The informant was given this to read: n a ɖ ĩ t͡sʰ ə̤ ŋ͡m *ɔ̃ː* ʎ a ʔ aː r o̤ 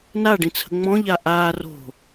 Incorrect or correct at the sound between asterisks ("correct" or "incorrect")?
incorrect